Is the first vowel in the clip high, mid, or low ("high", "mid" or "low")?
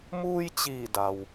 high